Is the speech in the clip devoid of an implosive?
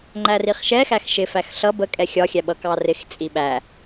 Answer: no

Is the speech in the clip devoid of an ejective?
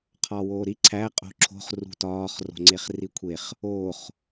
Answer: no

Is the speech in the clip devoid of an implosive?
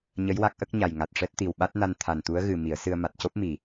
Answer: no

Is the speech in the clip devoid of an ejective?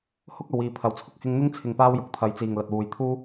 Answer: yes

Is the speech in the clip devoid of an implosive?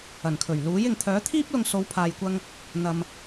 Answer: yes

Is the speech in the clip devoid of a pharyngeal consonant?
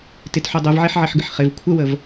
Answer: no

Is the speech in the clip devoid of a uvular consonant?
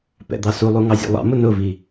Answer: yes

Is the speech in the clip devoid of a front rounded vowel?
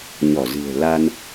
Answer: yes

